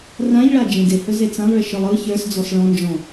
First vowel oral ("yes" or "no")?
no